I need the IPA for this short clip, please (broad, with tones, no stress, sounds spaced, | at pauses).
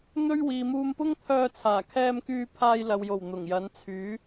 n̪ ɵ˥ ɥ w iː˨ m uː˧ m p ʊ˥ ŋ t̪ʰ œː˧ t͡sʰ aː˨˩ kʰ ɛː˧ m k yː˧ pʰ aː˧ j l ɐ˨ w j o˨˩ w n̪ ʊ˨˩ ŋ j ɐ˨˥ n t͡sʰ yː˨˥